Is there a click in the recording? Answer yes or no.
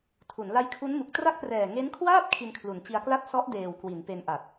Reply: no